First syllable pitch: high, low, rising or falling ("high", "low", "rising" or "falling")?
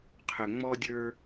low